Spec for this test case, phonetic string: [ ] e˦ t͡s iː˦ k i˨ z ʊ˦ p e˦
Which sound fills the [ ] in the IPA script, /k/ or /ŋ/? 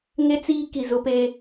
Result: ŋ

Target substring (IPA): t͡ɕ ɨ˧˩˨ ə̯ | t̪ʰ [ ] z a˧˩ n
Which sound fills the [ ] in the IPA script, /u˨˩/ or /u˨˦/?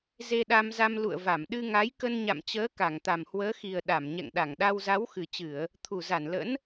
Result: u˨˩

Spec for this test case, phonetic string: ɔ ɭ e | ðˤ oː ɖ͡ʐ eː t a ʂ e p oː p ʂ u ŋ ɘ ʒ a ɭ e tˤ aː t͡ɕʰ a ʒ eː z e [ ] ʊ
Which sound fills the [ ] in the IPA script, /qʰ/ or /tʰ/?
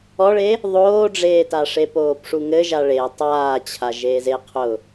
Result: qʰ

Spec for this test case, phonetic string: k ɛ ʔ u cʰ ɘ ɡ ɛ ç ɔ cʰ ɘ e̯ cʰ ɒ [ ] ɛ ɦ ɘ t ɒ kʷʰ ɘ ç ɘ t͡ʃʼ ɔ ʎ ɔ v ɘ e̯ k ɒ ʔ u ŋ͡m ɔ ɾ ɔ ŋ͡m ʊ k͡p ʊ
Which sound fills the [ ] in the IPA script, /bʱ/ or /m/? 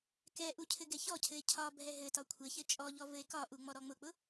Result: bʱ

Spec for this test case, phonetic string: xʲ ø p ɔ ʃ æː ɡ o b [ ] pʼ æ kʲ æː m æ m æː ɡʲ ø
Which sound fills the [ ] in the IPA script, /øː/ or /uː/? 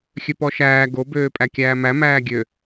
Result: øː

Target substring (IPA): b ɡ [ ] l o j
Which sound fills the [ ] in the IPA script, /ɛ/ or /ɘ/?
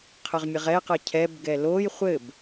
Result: ɛ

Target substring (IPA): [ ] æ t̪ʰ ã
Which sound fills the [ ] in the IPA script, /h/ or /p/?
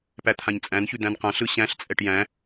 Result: p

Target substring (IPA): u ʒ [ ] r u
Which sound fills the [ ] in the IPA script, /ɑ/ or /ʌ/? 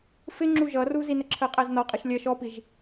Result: ʌ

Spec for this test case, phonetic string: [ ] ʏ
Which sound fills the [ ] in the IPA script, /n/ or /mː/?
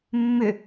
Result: mː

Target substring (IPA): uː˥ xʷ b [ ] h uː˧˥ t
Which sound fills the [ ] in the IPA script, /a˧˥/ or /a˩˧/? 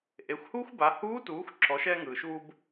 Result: a˩˧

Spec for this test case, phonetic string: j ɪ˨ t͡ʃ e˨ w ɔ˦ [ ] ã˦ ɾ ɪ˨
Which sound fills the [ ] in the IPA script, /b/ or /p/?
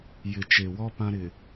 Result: p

